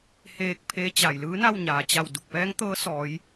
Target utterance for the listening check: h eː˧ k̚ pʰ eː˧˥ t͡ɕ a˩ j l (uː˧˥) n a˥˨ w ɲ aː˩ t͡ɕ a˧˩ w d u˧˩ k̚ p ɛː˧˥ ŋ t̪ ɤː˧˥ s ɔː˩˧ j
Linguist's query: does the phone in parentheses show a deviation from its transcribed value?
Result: yes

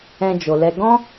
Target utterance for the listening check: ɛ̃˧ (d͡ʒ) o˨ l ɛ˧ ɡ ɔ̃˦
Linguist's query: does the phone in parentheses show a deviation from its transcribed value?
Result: no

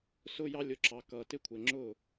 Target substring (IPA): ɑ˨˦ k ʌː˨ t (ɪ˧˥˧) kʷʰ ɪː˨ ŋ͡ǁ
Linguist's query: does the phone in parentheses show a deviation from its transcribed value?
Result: no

